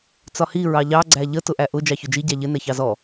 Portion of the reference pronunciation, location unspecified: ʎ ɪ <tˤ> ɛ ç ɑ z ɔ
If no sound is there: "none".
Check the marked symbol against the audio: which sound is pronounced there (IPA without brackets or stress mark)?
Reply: n